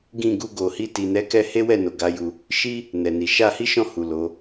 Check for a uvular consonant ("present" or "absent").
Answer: absent